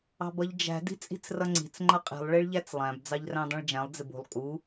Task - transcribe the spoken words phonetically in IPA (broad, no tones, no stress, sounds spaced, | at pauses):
ɑ̤ b ʌ ʎ d͡ʒ æ̤ d i̤ t͡sʼ i̤ t͡s r ʌ ŋ͡ǀ i̤ t͡s ŋ͡ǃ ʌ qʼ i̤ lˠ ɭ i ɭ ʎ æ t͡s lˠ æ̃ b d͡z ɑ ʎ r æ̃ dˤ ĩ ɭ d͡ʒ æ̃ lˠ d͡z ɪ b ṳ lˠ kʼ u